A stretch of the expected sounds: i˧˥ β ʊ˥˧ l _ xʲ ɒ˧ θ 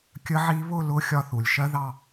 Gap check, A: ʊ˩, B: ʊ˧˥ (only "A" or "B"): B